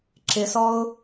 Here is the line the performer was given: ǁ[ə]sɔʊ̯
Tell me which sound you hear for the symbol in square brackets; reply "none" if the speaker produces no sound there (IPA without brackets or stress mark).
ɪ